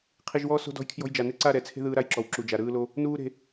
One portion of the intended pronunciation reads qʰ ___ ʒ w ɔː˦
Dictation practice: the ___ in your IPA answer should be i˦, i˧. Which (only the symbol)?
i˧